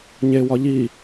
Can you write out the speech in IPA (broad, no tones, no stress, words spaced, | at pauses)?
ɲewɒ ʎi